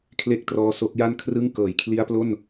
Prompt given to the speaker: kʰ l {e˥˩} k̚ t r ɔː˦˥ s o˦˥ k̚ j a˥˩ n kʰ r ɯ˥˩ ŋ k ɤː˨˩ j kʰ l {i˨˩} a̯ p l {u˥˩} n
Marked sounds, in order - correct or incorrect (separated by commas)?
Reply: correct, incorrect, incorrect